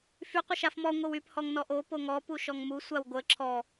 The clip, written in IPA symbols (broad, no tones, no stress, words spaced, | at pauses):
fy qʷəʃafmɔ ŋʷəwyp hɔŋnɔʔo poŋɔ puʃɔŋmu sʷawɡʷə ǁʰɔ